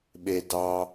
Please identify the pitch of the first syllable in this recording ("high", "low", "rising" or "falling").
low